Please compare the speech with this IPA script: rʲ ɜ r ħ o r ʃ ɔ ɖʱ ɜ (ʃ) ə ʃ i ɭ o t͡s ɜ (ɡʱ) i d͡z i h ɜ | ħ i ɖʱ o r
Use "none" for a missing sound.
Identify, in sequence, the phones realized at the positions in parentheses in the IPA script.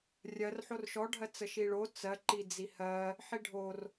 t͡s, ǃ

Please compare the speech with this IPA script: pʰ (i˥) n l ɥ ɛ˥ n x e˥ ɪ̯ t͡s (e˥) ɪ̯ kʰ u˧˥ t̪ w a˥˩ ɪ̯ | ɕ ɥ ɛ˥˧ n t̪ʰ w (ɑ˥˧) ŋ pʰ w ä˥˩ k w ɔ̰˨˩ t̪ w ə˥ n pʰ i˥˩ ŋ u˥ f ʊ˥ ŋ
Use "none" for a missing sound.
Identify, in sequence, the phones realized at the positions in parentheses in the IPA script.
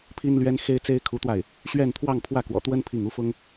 i˥, e˥, ɑ˥˧

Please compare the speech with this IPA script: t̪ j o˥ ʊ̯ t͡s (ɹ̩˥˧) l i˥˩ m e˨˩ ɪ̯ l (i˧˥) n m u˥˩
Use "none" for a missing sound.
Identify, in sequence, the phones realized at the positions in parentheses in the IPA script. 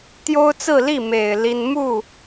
ɹ̩˥˧, i˥

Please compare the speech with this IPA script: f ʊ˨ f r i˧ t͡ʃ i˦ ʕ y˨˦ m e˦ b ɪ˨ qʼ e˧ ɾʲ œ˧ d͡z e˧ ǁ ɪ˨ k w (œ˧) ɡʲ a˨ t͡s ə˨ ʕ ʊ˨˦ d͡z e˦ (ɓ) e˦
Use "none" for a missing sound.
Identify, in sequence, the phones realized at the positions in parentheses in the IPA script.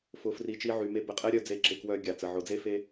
œ˧, f

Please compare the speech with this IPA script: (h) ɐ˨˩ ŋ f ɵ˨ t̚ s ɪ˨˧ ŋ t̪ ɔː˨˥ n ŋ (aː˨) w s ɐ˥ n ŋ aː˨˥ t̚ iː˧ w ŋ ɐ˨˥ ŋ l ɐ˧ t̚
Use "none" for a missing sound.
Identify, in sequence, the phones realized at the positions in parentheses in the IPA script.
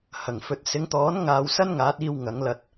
h, aː˧

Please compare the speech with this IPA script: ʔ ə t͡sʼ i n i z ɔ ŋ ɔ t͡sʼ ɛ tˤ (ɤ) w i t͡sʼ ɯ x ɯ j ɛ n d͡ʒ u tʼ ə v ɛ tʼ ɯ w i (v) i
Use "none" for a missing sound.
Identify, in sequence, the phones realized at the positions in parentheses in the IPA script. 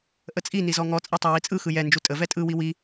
ɤ, w

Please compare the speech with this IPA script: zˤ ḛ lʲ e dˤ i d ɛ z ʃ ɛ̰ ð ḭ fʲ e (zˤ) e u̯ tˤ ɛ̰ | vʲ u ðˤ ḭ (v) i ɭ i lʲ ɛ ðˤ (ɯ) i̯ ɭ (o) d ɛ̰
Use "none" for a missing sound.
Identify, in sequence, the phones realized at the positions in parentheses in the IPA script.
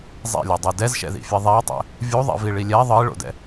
ðˤ, v, ɯ, o̰

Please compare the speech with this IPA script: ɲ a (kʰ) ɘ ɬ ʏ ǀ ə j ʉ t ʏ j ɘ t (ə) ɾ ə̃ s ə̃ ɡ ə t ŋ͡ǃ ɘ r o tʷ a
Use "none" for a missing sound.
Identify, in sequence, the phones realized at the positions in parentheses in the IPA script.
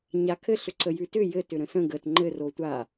kʰ, ʏ

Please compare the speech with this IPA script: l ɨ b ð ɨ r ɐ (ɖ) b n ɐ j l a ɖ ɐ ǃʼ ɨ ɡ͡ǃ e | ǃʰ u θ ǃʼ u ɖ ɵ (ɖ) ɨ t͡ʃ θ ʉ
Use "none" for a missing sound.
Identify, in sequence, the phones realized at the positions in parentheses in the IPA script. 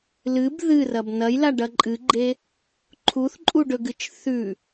none, ɡ

